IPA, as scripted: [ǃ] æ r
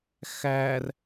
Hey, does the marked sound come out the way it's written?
no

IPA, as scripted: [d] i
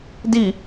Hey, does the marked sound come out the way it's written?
yes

